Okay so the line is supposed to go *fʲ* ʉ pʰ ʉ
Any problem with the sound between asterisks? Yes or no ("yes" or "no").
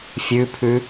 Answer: no